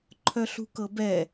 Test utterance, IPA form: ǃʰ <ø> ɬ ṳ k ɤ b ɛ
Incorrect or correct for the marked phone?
incorrect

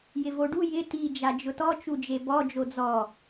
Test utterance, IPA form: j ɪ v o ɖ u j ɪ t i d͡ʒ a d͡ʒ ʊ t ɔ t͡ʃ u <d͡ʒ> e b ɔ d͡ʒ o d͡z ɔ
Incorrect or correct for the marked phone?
correct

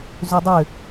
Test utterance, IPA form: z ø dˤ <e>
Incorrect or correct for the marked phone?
incorrect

